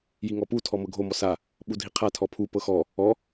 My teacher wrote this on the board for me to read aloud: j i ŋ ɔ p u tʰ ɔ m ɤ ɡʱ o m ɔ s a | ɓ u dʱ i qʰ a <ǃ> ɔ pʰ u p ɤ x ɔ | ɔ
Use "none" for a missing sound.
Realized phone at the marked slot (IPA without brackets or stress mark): tʰ